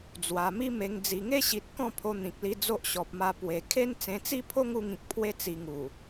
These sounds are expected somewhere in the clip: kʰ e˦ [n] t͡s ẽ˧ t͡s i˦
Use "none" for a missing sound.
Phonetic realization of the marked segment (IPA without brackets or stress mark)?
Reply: n